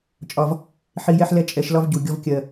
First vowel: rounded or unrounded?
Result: rounded